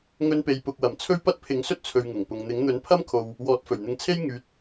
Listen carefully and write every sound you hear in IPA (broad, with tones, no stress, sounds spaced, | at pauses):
ŋ ɵ˧ n p e˨ j p ʊ˨ k̚ w ɐ˨˩ m t͡sʰ ɵ˥ ɥ p ɐ˥ t̚ pʰ ɪ˨˥ ŋ s ɵ˥ t̚ t͡sʰ ɵ˨ ɥ ŋ ʊ˨˩ ŋ p ʊ˨ ŋ n̪ ɪ˨˥ ŋ n̪ ɵ˨˥ n pʰ ɐ˥ m kʰ o˨ w | w ɔː˨ t̚ f ɵ˨˩ ɥ n̪ ɪ˨˧ ŋ t͡sʰ e˥ j ŋ yː˨˥ t̚